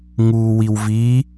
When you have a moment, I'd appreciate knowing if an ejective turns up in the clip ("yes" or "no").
no